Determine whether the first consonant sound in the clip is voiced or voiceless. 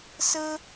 voiceless